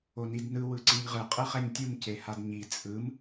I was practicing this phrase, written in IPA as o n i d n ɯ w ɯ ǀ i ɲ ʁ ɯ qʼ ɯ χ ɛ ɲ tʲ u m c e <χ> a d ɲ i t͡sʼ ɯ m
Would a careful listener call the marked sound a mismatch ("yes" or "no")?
yes